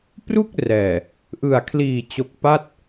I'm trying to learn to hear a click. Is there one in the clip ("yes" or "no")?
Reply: no